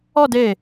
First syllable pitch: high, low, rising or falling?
falling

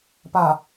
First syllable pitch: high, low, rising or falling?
low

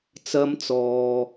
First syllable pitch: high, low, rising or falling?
high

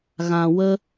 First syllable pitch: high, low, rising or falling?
low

